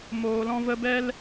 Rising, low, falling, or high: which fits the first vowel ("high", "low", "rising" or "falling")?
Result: low